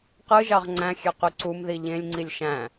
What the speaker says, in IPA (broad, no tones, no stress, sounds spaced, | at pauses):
q ɯ ʒ ɑ ʁ ŋ͡ǀ æ̃ xʲ ø q y ǀ u m ð i ʎ ẽ lʲ ŋ͡ǀ i lʲ ʃ æ̃